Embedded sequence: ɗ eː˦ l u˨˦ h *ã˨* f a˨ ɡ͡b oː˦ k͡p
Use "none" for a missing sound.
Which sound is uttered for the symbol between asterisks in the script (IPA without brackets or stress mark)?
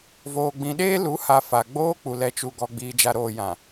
a˨